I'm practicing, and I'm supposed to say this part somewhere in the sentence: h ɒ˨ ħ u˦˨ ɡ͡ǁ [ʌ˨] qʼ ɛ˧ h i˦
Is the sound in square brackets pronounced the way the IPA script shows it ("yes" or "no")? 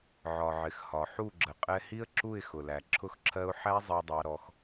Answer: no